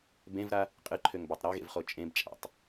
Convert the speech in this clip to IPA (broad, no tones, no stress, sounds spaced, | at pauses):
b ẽ v ɾ a | qʼ ɨ ǃʰ ø ŋ b a tˤ ɾ a ɣ ḛ v χ o t͡ʃʼ ẽ b t͡ʃʼ a̰ tˤ